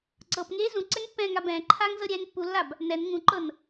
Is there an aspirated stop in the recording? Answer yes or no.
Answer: yes